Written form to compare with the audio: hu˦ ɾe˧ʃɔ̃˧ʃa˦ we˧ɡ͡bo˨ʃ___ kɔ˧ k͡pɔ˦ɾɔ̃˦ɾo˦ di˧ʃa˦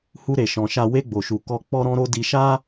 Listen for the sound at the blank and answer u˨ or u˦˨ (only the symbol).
u˨